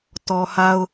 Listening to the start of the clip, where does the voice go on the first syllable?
low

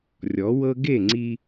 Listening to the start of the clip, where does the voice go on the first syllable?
rising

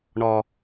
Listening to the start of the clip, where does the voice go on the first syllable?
high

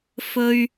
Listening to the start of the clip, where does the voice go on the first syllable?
low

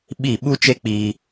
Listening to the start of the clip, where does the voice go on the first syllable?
falling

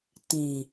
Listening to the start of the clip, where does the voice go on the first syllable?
low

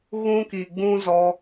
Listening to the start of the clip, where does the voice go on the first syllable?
high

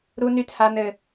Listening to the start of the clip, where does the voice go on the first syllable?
high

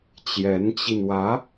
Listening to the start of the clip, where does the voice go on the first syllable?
rising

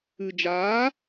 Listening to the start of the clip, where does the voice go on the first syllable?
low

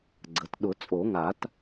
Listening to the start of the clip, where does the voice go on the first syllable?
rising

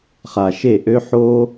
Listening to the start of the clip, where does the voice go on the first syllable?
low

